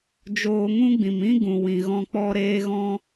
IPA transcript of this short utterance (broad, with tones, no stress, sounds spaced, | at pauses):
d͡ʒ oː˧ ŋ ũ˦ ɡ͡b ĩ˨ m ĩ˦ ɡ ũ˨ w ĩ˨ ɣ ɔ̃˧ k͡p ɔ˧ ɾ eː˦ ɣ ɔ̃˦